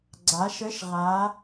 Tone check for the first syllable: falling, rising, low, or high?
rising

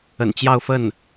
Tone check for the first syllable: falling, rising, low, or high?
low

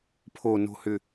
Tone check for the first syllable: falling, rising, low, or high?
low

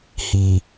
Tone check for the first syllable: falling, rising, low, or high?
low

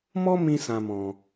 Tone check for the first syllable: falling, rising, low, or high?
high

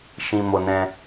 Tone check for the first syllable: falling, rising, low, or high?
low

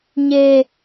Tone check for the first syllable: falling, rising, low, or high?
high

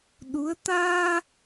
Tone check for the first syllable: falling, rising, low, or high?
rising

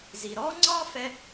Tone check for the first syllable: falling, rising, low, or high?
low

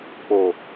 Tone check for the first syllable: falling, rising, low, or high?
low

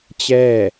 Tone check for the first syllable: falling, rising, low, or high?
falling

